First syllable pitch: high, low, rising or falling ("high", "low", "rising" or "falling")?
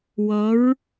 rising